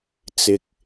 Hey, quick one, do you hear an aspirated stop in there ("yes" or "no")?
no